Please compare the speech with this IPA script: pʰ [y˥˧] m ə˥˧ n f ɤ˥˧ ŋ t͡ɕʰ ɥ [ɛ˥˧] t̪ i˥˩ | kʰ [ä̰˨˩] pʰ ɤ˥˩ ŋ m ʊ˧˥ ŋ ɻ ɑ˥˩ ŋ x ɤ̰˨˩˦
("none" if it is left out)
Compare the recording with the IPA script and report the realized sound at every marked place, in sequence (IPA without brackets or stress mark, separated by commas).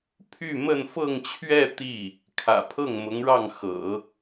y˥˧, ɛ˥˧, ä̰˨˩